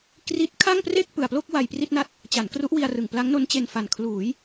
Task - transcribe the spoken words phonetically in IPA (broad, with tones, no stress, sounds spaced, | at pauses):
k r i˦˥ t̚ kʰ a˥˩ ŋ p r e˥˩ k̚ p ɯ˨˩ a̯ p l o˥˩ k̚ w a˧ j p r i˥˩ t̚ n a˥˩ t̚ | t͡ɕ a˩˦ n k r u˦˥ ʔ w i˧ a̯ r ɯ˨˩ ŋ p l a˦˥ ŋ n o˦˥ n t͡ɕ e˧ n f a˨˩ n kʰ l uː˩˦ j